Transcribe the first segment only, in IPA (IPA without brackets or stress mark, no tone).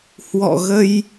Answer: h